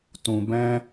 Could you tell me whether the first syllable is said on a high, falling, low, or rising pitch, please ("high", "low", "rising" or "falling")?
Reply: low